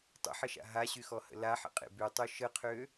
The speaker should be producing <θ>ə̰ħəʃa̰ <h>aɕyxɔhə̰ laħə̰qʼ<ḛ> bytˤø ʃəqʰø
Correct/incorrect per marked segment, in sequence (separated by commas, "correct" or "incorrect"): incorrect, incorrect, correct